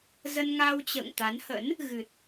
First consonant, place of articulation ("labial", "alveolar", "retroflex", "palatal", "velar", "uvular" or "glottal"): alveolar